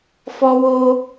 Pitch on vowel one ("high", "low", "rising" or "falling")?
high